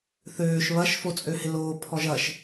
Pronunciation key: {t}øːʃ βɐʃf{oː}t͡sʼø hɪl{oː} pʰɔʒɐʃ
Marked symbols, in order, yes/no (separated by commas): no, no, yes